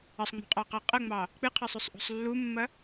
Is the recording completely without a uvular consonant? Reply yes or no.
no